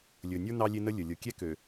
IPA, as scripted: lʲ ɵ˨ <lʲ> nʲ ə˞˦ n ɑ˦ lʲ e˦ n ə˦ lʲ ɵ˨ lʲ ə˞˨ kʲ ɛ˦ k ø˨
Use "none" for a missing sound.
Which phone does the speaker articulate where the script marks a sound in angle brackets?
none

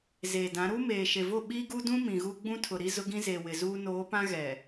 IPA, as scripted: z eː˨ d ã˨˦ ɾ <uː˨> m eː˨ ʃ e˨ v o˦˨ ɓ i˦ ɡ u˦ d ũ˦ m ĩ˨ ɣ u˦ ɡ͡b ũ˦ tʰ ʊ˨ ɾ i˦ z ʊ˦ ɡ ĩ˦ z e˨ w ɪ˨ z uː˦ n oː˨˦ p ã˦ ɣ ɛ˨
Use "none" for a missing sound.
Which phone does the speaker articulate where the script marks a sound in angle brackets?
uː˦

